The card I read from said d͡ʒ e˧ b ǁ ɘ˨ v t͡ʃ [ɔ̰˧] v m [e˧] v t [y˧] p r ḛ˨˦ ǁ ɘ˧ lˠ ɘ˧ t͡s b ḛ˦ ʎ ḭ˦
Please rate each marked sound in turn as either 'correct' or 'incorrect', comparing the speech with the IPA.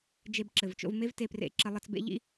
incorrect: o̰˧, incorrect: e˦, incorrect: e˧

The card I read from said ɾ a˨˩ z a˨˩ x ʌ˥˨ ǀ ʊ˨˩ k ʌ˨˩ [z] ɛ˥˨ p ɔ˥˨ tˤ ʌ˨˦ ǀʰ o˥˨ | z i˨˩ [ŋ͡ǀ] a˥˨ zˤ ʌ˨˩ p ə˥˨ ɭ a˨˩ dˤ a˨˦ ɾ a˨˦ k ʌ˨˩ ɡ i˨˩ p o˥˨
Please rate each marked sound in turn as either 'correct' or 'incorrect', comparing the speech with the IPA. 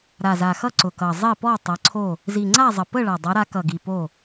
incorrect: zˤ, correct

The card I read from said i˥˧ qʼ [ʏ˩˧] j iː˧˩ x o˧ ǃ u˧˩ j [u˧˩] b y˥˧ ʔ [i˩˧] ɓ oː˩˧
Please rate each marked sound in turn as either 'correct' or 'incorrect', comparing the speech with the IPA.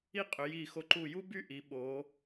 correct, incorrect: u˥, correct

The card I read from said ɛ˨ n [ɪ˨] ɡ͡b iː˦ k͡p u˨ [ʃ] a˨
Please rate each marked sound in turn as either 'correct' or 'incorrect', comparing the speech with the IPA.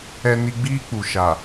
incorrect: i˨, correct

